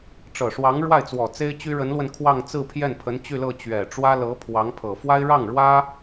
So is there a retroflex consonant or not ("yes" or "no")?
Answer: yes